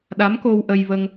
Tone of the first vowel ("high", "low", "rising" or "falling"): rising